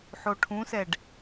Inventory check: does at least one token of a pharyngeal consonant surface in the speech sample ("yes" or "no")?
yes